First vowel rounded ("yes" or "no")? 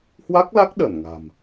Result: no